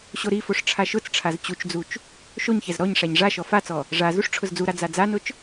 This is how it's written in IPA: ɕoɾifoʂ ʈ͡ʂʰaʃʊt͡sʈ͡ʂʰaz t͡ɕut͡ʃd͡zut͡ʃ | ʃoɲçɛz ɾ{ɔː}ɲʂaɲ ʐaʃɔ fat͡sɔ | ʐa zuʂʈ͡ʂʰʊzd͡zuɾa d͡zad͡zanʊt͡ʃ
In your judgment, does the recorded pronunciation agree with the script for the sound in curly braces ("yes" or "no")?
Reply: no